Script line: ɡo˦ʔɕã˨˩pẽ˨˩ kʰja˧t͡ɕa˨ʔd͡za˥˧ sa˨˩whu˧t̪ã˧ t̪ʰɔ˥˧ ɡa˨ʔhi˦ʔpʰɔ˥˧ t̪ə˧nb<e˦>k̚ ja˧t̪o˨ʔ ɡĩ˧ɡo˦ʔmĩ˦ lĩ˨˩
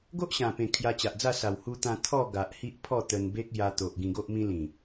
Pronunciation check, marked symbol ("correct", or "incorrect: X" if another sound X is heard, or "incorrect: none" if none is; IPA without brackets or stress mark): correct